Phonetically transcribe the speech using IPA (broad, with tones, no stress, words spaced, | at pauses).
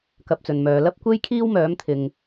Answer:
kɐ˧p̚t͡sɵ˨nmœː˨˧ lɐ˥p̚kʷe˥jkʰiː˥w mœː˨˥mt̪ʰɪ˨ŋ